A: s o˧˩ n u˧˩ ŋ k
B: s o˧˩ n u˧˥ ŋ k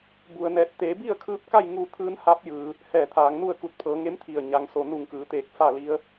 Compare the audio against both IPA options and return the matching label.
A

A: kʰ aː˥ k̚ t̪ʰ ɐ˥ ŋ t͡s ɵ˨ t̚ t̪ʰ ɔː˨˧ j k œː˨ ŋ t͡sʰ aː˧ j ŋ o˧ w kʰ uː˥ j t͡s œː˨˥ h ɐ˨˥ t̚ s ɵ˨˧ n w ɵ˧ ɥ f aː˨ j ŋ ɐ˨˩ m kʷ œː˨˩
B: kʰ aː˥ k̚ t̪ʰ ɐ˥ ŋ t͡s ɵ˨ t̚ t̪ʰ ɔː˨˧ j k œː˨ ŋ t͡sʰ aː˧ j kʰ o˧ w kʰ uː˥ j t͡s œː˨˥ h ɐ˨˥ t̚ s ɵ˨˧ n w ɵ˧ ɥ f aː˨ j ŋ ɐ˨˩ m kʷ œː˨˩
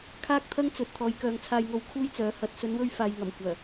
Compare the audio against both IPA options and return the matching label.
A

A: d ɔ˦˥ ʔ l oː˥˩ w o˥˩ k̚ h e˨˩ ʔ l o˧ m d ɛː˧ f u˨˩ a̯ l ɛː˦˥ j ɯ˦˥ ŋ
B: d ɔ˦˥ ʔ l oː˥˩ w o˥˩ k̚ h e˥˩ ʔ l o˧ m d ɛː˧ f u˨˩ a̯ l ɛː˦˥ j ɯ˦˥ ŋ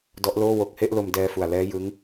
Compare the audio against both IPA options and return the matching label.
B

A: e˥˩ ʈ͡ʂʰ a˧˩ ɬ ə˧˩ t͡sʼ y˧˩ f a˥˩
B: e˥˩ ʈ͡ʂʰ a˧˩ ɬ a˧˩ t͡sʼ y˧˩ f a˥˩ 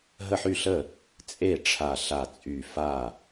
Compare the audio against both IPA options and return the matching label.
B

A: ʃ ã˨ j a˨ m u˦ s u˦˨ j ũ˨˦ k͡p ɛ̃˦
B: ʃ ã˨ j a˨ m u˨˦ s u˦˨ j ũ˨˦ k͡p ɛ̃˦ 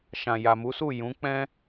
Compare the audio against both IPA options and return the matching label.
B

